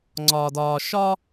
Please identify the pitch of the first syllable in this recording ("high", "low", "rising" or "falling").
low